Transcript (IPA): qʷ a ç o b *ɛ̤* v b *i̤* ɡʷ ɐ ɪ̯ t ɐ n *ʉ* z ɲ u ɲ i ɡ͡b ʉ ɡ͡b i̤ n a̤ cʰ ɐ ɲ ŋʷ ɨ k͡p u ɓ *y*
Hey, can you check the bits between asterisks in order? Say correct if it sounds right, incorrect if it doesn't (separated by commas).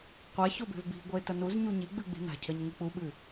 incorrect, correct, incorrect, incorrect